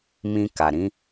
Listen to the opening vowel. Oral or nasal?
nasal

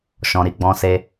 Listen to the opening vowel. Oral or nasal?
nasal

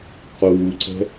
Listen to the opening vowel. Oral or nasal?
oral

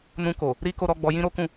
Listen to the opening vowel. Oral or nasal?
nasal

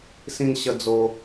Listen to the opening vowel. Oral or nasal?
nasal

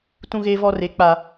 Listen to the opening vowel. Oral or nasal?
nasal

